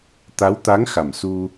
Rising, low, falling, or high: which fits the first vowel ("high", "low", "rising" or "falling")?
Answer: rising